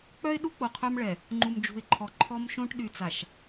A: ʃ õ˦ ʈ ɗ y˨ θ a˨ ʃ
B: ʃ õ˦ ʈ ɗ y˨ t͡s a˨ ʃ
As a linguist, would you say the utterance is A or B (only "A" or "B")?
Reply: B